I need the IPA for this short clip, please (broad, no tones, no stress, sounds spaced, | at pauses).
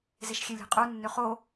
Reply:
z e ʃ xʲ e lʲ e̤ qʼ u nː ø χ o